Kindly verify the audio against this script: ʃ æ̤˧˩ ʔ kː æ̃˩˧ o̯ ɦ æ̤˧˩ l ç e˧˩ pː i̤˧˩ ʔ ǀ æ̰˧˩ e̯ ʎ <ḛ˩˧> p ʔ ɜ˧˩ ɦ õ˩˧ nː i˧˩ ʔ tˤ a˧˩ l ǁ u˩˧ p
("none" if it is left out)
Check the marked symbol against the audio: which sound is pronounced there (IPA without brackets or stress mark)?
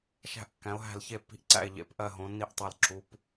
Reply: ḛ˩˧